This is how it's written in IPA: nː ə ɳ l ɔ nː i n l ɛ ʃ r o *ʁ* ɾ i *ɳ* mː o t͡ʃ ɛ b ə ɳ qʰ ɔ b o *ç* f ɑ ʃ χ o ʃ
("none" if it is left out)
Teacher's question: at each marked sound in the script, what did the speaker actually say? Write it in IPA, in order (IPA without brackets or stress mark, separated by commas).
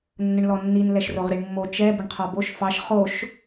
ʁ, ɳ, ʃ